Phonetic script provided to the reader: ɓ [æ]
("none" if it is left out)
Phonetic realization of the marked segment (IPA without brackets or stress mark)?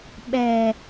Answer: ɛ